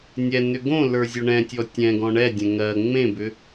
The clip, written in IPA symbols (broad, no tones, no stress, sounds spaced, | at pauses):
nʲ ɛ n ʏ ɡ õ l ə˞ zʲ o ɳ ɛ̃ tʲ ɔ tʲ ɛ̃ ɡ ɔ̃ ɳ ɛ dʲ ɛ̃ ŋ ɜ ŋ͡m ẽ b ʏ